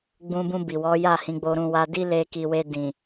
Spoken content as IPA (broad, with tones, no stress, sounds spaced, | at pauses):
ɡ͡b ũ˧ b ũ˧ b i˨ w ɔ˨˦ j a˦˨ h ĩ˨˦ ɡ͡b o˧ ɾ ũ˧ w a˧ d i˦ l e˧ k i˨ w e˧ d ĩ˨